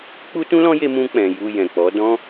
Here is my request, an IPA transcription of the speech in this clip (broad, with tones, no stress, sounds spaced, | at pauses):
k͡p u˦ t ũ˦ l ɔ̃˦ j e˧ m ũ˧ k͡p ɛ̃˨ j u˧ j ɛ̃˨ k͡p ɔ˨˦ d ɔ̃˦